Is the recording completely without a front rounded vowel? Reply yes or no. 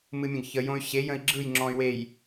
no